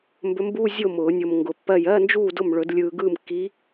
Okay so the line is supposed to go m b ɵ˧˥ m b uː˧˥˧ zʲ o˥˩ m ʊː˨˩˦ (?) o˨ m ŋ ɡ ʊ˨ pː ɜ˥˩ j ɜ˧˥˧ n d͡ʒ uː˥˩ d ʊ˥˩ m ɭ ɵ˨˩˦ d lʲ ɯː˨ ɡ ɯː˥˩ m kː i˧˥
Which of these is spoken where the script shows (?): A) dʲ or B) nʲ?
B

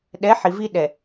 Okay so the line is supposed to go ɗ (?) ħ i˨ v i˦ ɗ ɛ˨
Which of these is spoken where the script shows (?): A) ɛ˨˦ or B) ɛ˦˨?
A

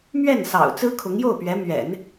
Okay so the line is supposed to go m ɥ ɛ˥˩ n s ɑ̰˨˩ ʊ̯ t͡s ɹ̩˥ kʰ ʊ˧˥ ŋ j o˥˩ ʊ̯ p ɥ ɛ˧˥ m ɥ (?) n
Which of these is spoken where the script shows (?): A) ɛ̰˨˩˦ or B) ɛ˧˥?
A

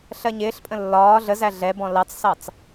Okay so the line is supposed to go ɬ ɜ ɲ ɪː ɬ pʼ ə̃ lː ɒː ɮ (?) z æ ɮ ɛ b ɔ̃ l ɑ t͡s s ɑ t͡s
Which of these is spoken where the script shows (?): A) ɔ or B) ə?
B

